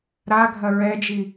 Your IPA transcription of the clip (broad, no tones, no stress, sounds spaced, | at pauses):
ɾ a ɡʱ ɐ ɹ ɛ d͡ʒ i